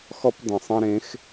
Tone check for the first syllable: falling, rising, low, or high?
high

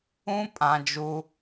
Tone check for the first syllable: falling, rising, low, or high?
high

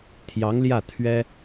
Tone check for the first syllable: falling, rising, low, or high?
rising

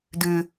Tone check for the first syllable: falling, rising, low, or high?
low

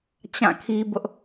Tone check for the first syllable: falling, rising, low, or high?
falling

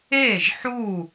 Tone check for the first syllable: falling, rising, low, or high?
falling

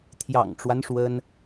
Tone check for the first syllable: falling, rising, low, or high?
low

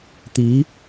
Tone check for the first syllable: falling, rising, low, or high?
rising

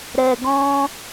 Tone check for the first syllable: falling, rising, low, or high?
low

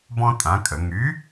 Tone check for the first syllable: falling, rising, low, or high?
high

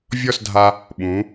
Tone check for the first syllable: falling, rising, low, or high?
falling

